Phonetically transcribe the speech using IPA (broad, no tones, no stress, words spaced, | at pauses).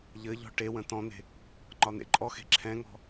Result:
ʎɘʎɔ̤ ʈewə̃ tɔ̃n̪e̤ | ŋ͡ǃɒn̪ḛǃʼɔxe̤ ǁʰɛ̃ŋɔ̤